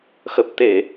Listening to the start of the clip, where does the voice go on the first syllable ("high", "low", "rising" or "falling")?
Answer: low